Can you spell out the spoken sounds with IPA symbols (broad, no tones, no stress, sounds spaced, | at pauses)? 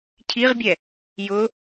cʰ i ʁ bʲ ɛ | j ʊ